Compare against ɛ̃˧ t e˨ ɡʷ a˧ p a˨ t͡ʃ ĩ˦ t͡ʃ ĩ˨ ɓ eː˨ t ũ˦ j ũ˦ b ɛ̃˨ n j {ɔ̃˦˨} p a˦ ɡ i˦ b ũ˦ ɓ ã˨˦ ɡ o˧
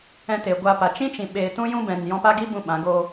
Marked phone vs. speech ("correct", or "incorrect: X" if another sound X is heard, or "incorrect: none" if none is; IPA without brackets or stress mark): incorrect: ɔ̃˧